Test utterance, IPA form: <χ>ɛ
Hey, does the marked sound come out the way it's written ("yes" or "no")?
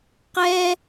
no